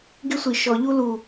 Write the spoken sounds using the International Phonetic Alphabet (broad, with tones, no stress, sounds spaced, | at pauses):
ɡ ɪ˦ sʷ i˨˩ ʃ ɔ˧˩˧ ʎ u˦ l u˨˩